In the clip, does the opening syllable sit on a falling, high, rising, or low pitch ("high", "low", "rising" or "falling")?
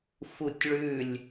falling